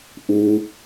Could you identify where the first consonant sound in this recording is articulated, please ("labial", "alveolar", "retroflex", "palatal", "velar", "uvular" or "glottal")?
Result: glottal